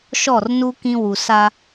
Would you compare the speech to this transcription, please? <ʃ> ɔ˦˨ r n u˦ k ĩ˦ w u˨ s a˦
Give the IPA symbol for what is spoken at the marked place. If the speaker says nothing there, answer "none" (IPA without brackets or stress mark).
ʃ